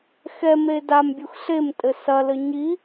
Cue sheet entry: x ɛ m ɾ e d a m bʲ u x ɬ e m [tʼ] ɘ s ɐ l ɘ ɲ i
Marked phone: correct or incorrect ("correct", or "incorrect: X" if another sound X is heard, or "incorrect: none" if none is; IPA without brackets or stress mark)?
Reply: correct